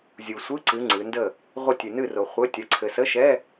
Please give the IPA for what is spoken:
zʲu˨sʷɨ˧˥˧ǀɨ˨˦ ŋ͡ǀɨ˨˦ndə˥˨ | ʁʷə˥˨tʲɨ˨nɨ˥˨ro˨ χʷɘ˧˥˧ tʲɐ˨˦ǀʰɘ˨sə˧˥˧ʃɛ˧˥˧

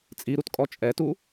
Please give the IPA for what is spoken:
t͡sʼiɾutkʼɔ t͡ʃʼɛtu

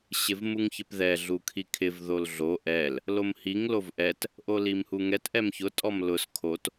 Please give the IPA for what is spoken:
ɕɪvmuŋçɪpðɛ ɮukʰikʰɪv ðolɮo ʔɛl | lomhiŋ lovʔɛt | ʔolimhuŋɛt ʔɛmçʊ tʼɔmlʊs kʰot

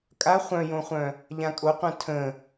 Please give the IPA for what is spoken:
kʼa χʷœ̃jõχʷœ̃ | ʎãkʼoqʷœ̃ tʰə̃

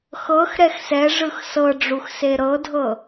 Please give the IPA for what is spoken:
xɤx ɾɛxsɛʐɯx sɤɖ͡ʐux seɾɤdʱɤ

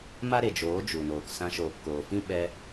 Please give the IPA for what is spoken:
ma˦ɾe˨d͡ʒoː˨˦ d͡ʒu˨noː˨k sã˧ʃoː˨pkoː˨fĩ˦ ɓɛ˧

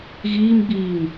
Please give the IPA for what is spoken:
ɣiːmɡ͡biːŋ

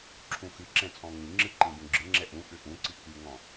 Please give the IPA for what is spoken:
ǁʰũxɨǁɛ̃ t͡sʼɔ̃ŋĩŋ͡ǁɨ ǃĩbũɡ͡ǁɨŋ͡ǁɛ ʔũ ʔʏʔũǀi kyŋɔ̃

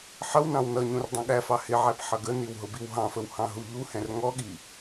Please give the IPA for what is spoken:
ħʌwnɑ̃w nʌɲũr dˤũɠæfɑ hɪʕæp ħʌɡəniw ɦʊbiwɦɑ̃fəw hɑ̃ɦuʎuhɛ̃r ŋɔɠi

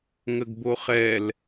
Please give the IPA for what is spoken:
ŋəɡboχɛl

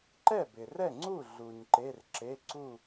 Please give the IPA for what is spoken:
ǃɛ˥˩bɪ˩rɛ˥˩ŋ͡ǀu˥˩ ɮu˩ɲ ǃe˩˧˩rǁe˩˧˩ ǀu˥˩

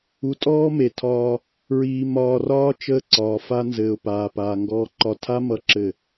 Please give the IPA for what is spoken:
u˨tʼɔː˦me˨ tʰɒː˦ | ɹiː˨ mɒː˨rɒː˦ t͡ʃəː˦ǀɒː˨fa˦ nzɘː˨ʊ̯paː˨ paː˨ ŋɡɔː˨ǃɒ˨tʰa˦ mʌ˦ǁɘ˦˨

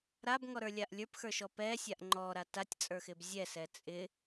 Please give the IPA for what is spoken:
ɾabŋɔɾə˞lʲaʔ lʲə˞pxə˞ʃɔ pɛsʲaʔ ŋ͡ǃɔɾa tatʲt͡sʼə˞xɪb zʲɛsɛ t͡sʼɪ

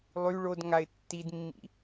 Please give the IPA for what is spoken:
lˠy ɭod ŋaɪ̯tːidmːḭ

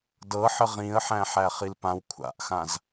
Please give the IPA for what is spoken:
dɤħə ʁĩə̯ħæ̃ħæ χilpãw kʷʰa̰ʔxãz

